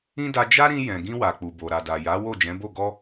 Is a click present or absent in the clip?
absent